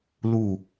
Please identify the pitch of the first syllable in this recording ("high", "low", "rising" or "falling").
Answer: falling